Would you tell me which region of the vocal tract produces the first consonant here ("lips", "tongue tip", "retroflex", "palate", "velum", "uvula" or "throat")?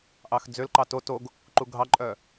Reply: throat